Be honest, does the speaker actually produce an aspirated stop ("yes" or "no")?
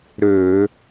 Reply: no